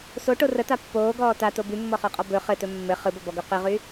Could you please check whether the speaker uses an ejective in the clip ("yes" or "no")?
yes